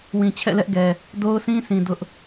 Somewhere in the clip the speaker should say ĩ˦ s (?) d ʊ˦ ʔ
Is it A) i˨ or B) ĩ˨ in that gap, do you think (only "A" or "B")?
B